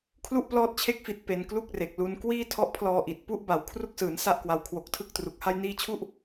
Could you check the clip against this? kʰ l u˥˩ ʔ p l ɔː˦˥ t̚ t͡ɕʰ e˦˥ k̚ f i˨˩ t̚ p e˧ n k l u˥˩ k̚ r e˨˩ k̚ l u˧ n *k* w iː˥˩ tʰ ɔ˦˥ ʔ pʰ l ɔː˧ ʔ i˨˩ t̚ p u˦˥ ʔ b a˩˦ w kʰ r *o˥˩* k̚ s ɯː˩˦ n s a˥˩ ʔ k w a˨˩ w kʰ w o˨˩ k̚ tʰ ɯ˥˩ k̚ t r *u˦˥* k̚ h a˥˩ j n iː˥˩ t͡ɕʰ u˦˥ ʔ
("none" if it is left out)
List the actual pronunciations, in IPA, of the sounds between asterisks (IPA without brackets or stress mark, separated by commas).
k, u˥˩, u˨˩